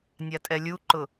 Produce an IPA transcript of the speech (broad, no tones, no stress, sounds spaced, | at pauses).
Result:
nʲ a tʼ ɛ lʲ u ǃ ʊ